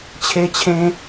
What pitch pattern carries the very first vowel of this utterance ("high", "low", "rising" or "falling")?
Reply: high